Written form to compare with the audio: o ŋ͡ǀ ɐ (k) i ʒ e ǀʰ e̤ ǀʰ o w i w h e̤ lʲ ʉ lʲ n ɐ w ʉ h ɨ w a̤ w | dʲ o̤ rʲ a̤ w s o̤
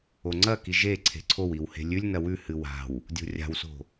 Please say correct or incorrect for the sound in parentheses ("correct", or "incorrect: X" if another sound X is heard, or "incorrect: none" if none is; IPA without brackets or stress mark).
correct